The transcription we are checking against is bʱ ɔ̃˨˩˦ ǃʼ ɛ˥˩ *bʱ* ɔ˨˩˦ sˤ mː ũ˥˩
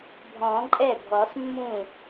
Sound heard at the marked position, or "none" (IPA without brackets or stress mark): bʱ